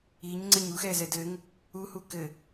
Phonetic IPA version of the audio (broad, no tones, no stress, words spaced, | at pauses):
iɲ ŋ͡ǀɘɲuxɛzɛ dɘŋ | u hukɘ